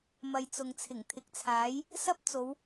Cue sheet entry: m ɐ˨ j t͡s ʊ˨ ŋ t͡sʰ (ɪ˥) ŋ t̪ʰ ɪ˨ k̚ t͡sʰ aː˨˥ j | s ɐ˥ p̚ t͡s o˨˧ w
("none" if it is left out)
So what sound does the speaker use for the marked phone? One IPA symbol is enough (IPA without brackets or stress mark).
ɪ˨˩